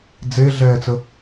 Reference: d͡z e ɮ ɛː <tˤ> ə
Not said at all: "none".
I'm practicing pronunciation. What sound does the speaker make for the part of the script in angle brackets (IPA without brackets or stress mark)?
t͡s